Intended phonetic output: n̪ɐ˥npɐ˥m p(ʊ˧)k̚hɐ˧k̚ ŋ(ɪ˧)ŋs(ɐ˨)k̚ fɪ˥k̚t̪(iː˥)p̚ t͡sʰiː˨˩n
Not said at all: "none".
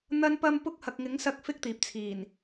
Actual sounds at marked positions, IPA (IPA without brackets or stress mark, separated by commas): ʊ˥, ɪ˨˥, ɐ˧, iː˨